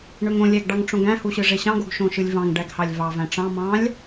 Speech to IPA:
ɳ ø ŋ õ lʲ æ ɡ ɖ ɑ ŋ ʈ͡ʂ õ ɡ æ̃ h u ɕ ɯ ʐ e ɕ ɑ̃ ɡ o ɡ ʃ õ ʃ ɯ lʲ v ɑ̃ ŋ ɖ æ ɡ h ɑ lʲ v ɑ v æ̃ ʈ͡ʂ ɑ̃ m ɑ̃ lʲ

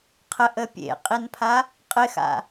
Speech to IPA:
qʰ ə ʔ ə pʲ ḛ qʼ i n pʰ a | qʼ ɪ x a̰

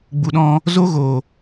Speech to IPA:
ɡ͡b u˨ ɗ ɔ̃˧ | z o˦ ɣ o˨

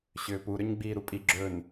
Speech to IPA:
ɕ ʏː p u ɾ ʏ ɲ ɡ͡b iː ɾ u pʼ i ɡ͡ǁ ɵː n

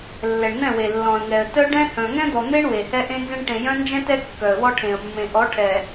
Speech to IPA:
lː ɛ˨ ɳ n̪ ɛ̃˦˨ w e˨ lː ɔ̃˨ ə̯ ŋ ɛ˨ ə̯ t œ˦ ɖ ɛ̃˦ h œ̃˨ ŋ ɛ̃˦ d̪ ɔ˨ n̪ e˦ ɳ w e˨ h ɛ˦ ʔ ẽ˦ n z ẽ˦ ɳ ʈ ẽ˨ j œ̃˦ n d͡ʒ ɛ̃˦ t ɛ˦ kː œ˨ ə̯ w ɔ˦ ʈʰ ẽ˨ ə̯ mː ẽ˨ ʔ ɔ˨˦ ʈʰ ɛ˨

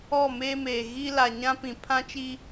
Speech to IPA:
ɔ˦˨ m eː˦ m eː˨ ɣ i˦ l a˨ ɲ ã˦ p ĩ˨ pʰ ã˦ t͡ʃ i˦

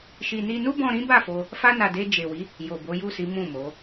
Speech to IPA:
ʃ i˧ n i˧ n u˦ b ɔ̃˧ ɾ ĩ˦ b a˦˨ f o˧ | f a˦ n a˧ d e˧ d͡ʒ e˨ w i˨˦ | j o˨ b o˨˦ j u˦˨ s i˨˦ m ũ˦˨ m o˨˦

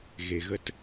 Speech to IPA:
ɣ e˨ ɣ ə˦ t

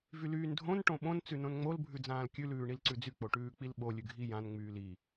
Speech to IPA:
v y l yː n dʱ õ n ʈ õ ɓ õ n t͡s ʉ n õ n ŋ͡m o l bʱ ʉ d͡z ãː l kʲ ʉ l ʉː ɳ i l ǀ ʉ d͡z y k͡p o ʈ ʉː k͡p i l ɓ o lʲ ʉ ɡʱ i j ã n ŋ͡m yː l i

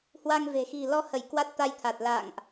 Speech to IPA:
h w a˧ ŋ v e̤˨˩ x i̤˨˩ l ɔ˧ h ə˧˩ j k w a˦˥ t̚ t̪ a˧ j t̪ʰ a˨˩ t̚ l a̰˧˨ ŋ ʔ

